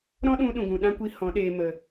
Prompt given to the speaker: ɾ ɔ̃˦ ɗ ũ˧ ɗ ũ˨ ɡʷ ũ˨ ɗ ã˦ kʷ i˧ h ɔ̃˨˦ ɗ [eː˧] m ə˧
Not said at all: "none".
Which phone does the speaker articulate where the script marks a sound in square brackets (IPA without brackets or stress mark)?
eː˧